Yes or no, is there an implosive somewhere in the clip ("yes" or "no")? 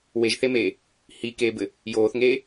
no